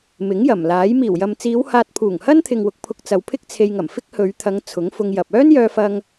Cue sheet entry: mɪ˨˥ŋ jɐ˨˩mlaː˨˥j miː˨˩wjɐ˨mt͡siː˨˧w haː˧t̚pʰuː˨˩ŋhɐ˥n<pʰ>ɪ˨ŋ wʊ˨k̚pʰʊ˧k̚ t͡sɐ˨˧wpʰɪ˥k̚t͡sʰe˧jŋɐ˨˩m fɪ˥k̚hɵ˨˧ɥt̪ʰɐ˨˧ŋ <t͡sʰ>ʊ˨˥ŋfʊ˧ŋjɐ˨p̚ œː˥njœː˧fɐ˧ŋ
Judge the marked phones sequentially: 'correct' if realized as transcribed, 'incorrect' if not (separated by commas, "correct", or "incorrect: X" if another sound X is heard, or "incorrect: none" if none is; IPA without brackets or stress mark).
incorrect: t̪ʰ, correct